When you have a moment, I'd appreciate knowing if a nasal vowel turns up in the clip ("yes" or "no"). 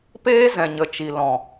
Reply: yes